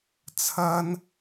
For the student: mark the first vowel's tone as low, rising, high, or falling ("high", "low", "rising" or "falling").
high